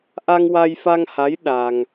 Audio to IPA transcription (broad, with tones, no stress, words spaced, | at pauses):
ʔa˧ŋwa˧jfa˧ŋha˧˥j ɗa˧ŋ